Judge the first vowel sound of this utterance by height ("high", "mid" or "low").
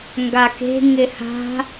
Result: low